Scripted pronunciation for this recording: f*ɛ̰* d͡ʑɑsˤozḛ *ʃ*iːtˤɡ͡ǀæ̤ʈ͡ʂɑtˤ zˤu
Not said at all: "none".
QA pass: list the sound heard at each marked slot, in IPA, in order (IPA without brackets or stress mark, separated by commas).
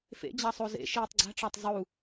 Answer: ḛ, ʃ